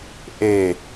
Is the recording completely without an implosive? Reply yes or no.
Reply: yes